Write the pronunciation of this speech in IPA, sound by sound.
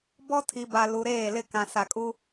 b ɔ˦ tʰ i˨ b a˨ l u˨ ɾ eː˦˨ l ɪ˦˨ k ã˨ s a˨ kʼ u˦

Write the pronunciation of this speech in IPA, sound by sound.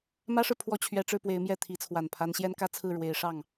m ä˥ ʂ ɻ̩˨ pʰ w ɔ˥˩ t͡ɕʰ ɥ ɛ˧˥ ʈ͡ʂ ɻ̩˥˩ p w e˧˥ ɪ̯ m j ɛ˥˩ t̪ʰ i˧˥ t͡sʰ w a˨˩ n pʰ a˧˥ n ɕ j ɛ˥ n k ä˥ t͡sʰ ɹ̩˥˩ ɻ w e˧˥ ɪ̯ ʂ ɑ˥˩ ŋ

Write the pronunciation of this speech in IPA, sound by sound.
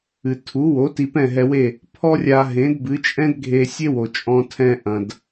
ɨ˩ tʰ u˩˥ w o˩˥ t i˧ p ɛ̃˥˩ ɦ ɛ˧ w e˥˩ | pʰ ɔ˥ rʲ a˧ ɦ ẽ˩˥ d b ɨ˩˥ t͡ʃʼ ɛ̃˥ d ɡʱ e˧ sʲ e˥ w o˩ t͡ʃʼ ɔ̃˧ tʰ ɛ̃˧ ʔ ɐ̃˩ d

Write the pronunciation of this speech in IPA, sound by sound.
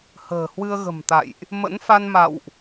h ə̤ː˨˩ h w ɨ˧ ə̯ ɣ ə̤˨˩ m t̪ a̰˧˨ j ʔ | m ə̰˧˥ n f a˧ n m a̰˧˨ w ʔ

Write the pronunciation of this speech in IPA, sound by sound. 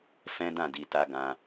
f ɛ̃˦ d ã˦˨ d i˧ t a˦ ɡ ã˦

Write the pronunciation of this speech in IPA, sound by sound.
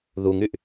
ð u ŋ y ʔ

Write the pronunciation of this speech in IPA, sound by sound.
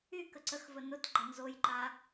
y k ə ǀ ə x v ə n ʊ t ɡ͡ǃ ʌ n z o j ǃ a

